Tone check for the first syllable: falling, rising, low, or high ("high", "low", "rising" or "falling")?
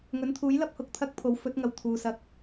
rising